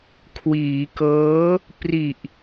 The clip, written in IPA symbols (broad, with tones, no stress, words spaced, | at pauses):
kʰwiː˩˦kɤː˦˥ | pri˨˩ʔ